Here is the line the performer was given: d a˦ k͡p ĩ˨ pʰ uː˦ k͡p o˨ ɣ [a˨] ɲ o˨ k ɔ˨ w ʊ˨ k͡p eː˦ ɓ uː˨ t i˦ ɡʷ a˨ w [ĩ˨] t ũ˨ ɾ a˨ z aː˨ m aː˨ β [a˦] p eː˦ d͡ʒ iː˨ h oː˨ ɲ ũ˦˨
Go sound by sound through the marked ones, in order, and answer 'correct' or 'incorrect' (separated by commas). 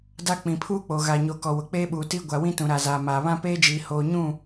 correct, incorrect, incorrect